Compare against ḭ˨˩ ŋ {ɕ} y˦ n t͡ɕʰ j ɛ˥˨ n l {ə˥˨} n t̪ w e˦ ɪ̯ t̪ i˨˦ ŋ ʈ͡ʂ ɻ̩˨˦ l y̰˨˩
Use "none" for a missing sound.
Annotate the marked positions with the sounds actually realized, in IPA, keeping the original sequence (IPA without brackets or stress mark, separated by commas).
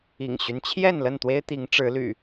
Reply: ɕ, ə˥˨